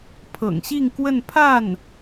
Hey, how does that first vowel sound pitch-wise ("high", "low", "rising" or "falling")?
low